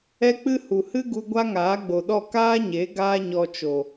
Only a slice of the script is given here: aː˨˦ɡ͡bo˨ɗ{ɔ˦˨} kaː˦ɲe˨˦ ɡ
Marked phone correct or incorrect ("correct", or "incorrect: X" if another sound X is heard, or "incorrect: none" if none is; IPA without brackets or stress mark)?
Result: correct